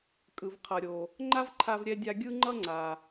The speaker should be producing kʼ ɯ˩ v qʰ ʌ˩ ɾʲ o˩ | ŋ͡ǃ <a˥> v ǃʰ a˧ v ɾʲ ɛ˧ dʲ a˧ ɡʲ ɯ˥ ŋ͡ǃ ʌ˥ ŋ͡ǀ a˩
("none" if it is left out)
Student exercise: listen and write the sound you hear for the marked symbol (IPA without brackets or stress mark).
a˥